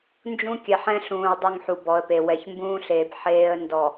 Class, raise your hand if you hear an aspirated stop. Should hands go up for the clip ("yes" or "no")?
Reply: no